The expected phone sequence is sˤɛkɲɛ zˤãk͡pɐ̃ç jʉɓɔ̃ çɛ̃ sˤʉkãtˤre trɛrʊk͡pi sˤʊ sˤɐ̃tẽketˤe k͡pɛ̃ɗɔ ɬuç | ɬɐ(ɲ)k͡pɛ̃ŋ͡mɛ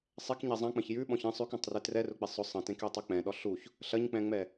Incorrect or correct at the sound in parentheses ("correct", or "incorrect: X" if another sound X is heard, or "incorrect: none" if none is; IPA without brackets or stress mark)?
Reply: correct